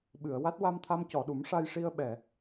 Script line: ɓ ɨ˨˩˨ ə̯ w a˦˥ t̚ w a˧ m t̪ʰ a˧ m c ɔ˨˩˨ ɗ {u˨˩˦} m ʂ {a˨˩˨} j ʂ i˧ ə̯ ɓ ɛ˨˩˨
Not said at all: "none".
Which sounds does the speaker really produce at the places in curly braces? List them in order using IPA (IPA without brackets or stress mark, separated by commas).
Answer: u˨˩˦, a˧